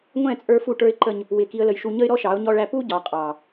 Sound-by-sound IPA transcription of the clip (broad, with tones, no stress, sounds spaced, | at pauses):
ŋʷ ɛ̃˦˨ t͡sʼ ə˞˦ f u˦˨ ʈ ə˞˦ ɪ̯ ǃ ə˦ ɲ | w ɪ˨ k i˨ ə̯ l ə˨ j ʃ u˨ ɲ ə˦ ɪ̯ ɾ ɔ˦ ʃ ɑ˨˦ ʊ̯ ɲ ɔ˦ ɭ æ˦ p u˦ ɟ ɑ˨ qʼ ɑ˨